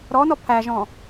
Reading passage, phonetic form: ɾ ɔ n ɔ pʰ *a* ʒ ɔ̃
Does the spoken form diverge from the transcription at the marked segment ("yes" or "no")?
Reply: yes